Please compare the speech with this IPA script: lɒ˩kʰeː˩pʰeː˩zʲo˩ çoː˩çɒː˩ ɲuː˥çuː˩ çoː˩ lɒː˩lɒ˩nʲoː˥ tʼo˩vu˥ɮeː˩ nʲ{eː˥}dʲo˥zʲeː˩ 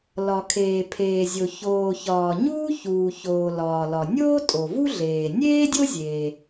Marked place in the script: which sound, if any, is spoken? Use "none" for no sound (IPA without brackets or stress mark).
eː˥